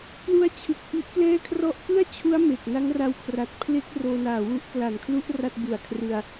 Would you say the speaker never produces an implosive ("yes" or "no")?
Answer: yes